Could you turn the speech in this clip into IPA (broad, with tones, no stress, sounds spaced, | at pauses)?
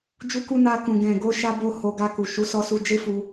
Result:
d͡ʒ u˧ k u˧ n a˧ k ũ˨ ɡ ɛ̃˨ ɡ o˧ ʃ a˧ b o˧ h o˧ ɡ a˧ k u˨ ʃ u˨˦ s ɔ˧ s u˧ d͡ʒ e˦ f u˧